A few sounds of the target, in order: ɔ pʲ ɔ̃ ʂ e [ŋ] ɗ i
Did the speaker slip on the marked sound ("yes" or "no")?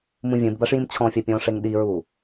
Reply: no